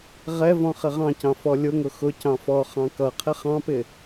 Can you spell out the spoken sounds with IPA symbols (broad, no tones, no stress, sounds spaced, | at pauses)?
ʁ ɛ v ɔ̃ χ ɪ ʁ ɑ̃ c ɑ̃ f ɔ lʲ ʊ ŋ ʊ x ʊ c ɑ̃ f ɔ χ ɑ̃ k ʌ qʰ ɪ χ ɑ̃ p ɪ